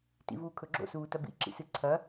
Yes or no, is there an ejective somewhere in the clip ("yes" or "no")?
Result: no